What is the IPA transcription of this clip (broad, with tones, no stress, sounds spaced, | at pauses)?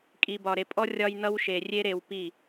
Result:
kʼ i˨ b ɒ˨ ɾ e˨ pʼ ɔ˦ rʲ ɒ˧ j n ʌ˧ w ʃ e˨ rʲ e˦ ɾ e˧ w p i˦˨